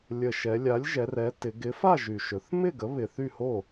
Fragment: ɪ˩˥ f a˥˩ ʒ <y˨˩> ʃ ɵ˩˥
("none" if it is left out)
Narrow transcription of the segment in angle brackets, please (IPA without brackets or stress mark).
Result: y˨˩